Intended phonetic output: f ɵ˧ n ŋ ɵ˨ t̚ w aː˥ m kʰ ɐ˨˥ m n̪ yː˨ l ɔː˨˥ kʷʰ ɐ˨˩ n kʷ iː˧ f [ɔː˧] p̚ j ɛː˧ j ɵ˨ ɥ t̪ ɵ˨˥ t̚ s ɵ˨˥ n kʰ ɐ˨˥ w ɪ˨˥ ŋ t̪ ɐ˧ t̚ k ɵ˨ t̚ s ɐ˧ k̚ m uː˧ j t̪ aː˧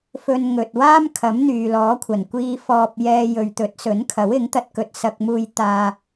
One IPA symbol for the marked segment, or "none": ɔː˧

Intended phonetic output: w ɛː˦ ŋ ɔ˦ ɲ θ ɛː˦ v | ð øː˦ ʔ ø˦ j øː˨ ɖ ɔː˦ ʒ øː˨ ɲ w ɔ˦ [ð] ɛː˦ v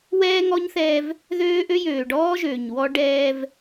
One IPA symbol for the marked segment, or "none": ɖ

